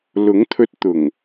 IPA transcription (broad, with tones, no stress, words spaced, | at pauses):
lʊ˨˥ŋt̪ʰɵ˧t̚t̪ʊ˨˩ŋ